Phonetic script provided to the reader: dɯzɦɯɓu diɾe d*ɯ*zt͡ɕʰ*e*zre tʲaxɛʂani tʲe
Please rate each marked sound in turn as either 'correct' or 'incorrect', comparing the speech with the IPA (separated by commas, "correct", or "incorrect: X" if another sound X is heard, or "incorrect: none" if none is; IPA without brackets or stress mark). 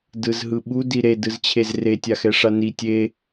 correct, correct